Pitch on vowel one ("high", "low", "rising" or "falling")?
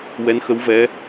rising